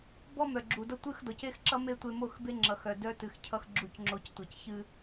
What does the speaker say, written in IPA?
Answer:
bɔ˦mœ˨ ɡ͡ǁu˨dʌ˦ tʷɨ˦˨xdɔ˨ce˦xǁʌ˦ me˦tʷe˧mo˦˨x be˦ŋ͡ǁʌ˨xœ˨ dœ˧ tɨ˨xcʰʌ˧x ɡ͡ǁu˨cŋ͡ǁo˨c tʷʌ˨cçɨ˧

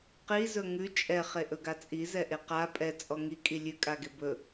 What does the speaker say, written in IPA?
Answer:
qizɵ ŋʉ t͡ʃʼɛ χeʔɵɡat͡sʼi zɛʔeqa pʼɛ t͡sʼɔŋikʼi lʲʉkʼaɡe bɵ

